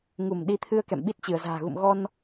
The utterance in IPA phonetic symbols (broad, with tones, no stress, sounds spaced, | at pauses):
ŋ u˧˩ m ɗ i˨˦ t̪ʰ ɨ˧ ə̯ k ɛ̰˧˨ m ɓ i˦˥ t̚ t͡ɕ ɨ˧˩ ə̯ z a̤ː˨˩ ɣ ṵ˧˨ m ɣ ɔ˧ n